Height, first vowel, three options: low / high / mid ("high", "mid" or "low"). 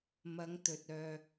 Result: low